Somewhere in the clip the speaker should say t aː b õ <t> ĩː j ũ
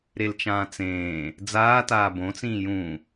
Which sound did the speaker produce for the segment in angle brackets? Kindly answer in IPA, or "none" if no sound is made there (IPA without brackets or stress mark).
t͡s